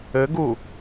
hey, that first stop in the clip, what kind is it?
plain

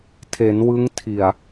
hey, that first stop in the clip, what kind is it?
aspirated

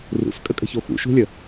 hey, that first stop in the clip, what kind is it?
ejective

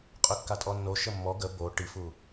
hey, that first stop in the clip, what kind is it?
ejective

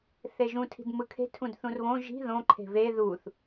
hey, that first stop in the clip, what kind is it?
aspirated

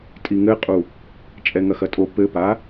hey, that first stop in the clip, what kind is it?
ejective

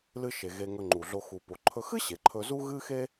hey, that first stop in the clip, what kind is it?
click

